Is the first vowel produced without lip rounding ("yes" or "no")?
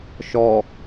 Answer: no